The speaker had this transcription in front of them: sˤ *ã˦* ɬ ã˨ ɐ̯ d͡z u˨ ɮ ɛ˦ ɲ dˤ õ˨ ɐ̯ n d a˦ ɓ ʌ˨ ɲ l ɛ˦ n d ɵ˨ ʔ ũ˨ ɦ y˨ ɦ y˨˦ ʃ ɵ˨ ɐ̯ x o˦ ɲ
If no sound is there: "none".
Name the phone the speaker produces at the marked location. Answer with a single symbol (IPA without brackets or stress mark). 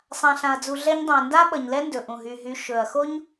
ã˨